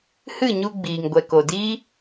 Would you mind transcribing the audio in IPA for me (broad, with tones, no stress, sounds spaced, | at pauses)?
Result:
h ɨ˦˨ ɲ u˧ ɡ͡b iː˨ ŋ ɡʷ ɛ˨ k o˨ d iː˦